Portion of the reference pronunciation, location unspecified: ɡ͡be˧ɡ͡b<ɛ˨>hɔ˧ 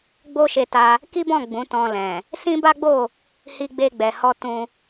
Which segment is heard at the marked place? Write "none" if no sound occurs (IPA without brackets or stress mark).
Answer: ɛ˨